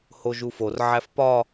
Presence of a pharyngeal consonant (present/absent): present